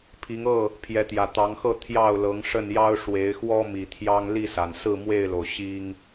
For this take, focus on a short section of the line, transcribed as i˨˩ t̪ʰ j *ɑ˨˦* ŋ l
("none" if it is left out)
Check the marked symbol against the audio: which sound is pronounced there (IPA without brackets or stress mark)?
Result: ɑ˦